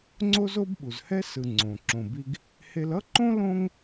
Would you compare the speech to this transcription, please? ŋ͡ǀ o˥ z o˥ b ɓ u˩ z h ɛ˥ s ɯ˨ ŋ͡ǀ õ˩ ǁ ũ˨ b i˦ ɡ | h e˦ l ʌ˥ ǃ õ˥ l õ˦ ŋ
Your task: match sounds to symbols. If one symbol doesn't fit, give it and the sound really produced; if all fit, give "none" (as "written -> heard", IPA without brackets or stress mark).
ũ˨ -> õ˨